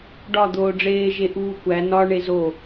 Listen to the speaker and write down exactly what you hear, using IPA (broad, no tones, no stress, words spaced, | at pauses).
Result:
ɖɒ d̪oːɖ͡ʐeː ʒeʔuːkʷæ nɒ ɳezo